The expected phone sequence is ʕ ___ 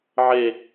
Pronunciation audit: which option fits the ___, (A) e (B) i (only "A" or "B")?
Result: A